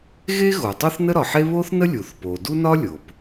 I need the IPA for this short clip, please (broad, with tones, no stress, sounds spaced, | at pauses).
ɣ e˥ ɣ o˩ tˤ o˥ θ n ə˥ ɾ ɒ˩ ħ e˥ β o˥ θ n ə˥ lʲ u˩ θ p o˩ d u˥ n ɒ˥ lʲ o˩ p